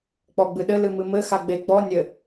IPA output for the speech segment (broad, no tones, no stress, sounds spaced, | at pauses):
k͡p ɔ ɡ͡b ɨ ɗ ɘ l ɨ m ɨ m ɘ x a ɡ͡b e ɡ͡b ɔ nʲ ɘ